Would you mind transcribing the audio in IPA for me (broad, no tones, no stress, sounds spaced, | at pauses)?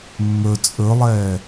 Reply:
mː ɵ t͡sʼ ɵ lˠ ɛː